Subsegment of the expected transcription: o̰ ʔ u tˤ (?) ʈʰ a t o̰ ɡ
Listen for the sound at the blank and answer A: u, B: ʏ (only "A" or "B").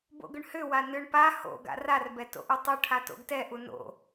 A